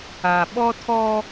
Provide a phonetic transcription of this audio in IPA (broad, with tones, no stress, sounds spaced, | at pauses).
a˨ ɓ ɔ˦ tʰ ɔ˦